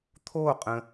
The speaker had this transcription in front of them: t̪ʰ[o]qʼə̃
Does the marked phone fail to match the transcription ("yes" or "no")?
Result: no